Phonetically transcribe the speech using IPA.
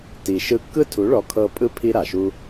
ti˨ʃɯ˧kːɯ˦ tʰu˨˦ɭɔ˨˦kʰɤ˧ pʼɯ˦ pʰi˦ɾa˨ʃu˦

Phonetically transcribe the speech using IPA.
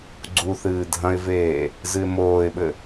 ɡ͡ǀuθɨː dʱɐ̃ɪ̯veː | zɨɪ̯moːɪ̯ɓɘ

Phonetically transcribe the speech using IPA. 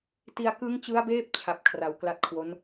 ti˧a̯kɯ˦˥ŋt͡ɕɯ˦˥a̯beː˦˥p̚ t͡ɕʰa˦˥p̚ kʰra˧w kla˦˥t̚kʰwo˦˥n

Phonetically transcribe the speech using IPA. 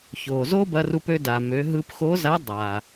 ço˩zo˥bɐ˧ru˧p ø˧da˩mø˩˧ ɦɯ˧pxo˧˥za˧˥ dˤa˩

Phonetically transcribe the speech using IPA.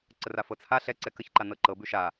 ǀərafɤt͡sʰa ɬɛǀɛ kəçǃa nɤǃɤ bʉʃa

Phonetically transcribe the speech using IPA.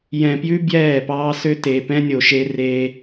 jɛ̃˨pjʉ˦ bjɛː˦˨pɑː˦sø˦ te˨pɛ̃˦nʲo˨ʃe˦ reː˦

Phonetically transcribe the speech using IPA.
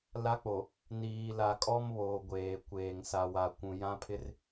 la˦k͡po˨ | niː˨ la˨kʼɔ˦mβoː˨ ɡʷeː˨ kʷeː˨ŋ sa˨wa˨kʷũ˨ jã˦pʰɪ˦r

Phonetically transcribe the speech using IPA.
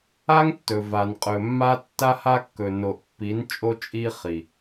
a˦ŋ tːɵ˨va˨n qʼɵ˨mːa˦ tːa˦ha˦kːɵ˨ no˨ʔpːi˨˦nt͡ʃʼo˦ t͡ʃʼi˦ χi˨

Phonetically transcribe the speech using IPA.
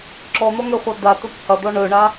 ǁɔn̪ɔŋɛχʷa d̪at̪ɵp hɐd̪ɔ ɳɵɳa

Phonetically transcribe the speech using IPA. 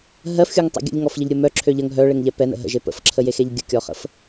ɦɜfxʲuŋtˤɛ̰ ɡʲə̰ʎŋɔfʎəʎɾʲo mœǁʰø ʎəŋ ɦœɭeŋʎɛ pɛnə̰ ɦə̰ʒe pə̰fǁʰəjexeʎ ɡʲəkʲɔχə̰f

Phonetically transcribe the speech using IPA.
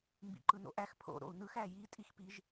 mbḭǃɯno̰ʔæx pʰo̰ ɾo̰u̯nɯx æji tʼixpiʒ

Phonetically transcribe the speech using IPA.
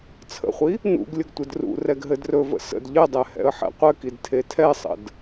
t͡sʰə̰χʷi | nṵɡ lʲəɡtʷɘdrṵrɛɡ ɦɘdrɵvə̰ sə̰d ʎɘdˤɛ hɛ̰ə̯ħɛ̰qʷɘkid tʰetʰɛsˤə̰d

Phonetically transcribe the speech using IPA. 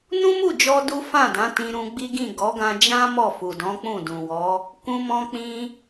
nũ˦mu˦˨d͡ʒɔ˧ du˦fã˦˨dã˨˦ tĩ˧ɾũ˧ɡ͡bi˦ɡĩ˦˨ ɡɔ˨˦ɡã˧d͡ʒã˦ mɔ˦˨fu˨ dɔ̃˨˦ k͡pũ˦˨dũ˨wɔ˨˦ | kũ˧mɔ̃˧k͡pĩ˧

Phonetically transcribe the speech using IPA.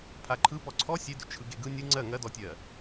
pʰaǃʰɯ pɔǀʰɔ sʲedʏ t͡ʃʰɯɡeɡɯ nʲɯ ŋ͡ǀɜ ŋɜdɔtʲɜ

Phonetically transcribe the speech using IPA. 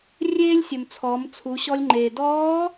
rʲeː˥lʲsʲɵ˩m t͡sʰɔ˩˧mt͡sʰu˩˧ɕɔ˧lʲŋ͡ǃeː˩ dɔː˧˥

